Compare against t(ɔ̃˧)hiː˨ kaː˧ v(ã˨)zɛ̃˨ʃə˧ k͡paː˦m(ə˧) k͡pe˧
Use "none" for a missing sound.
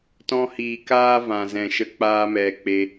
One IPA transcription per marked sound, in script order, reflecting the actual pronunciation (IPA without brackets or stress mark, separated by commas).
ɔ̃˧, ã˨, ɛ˧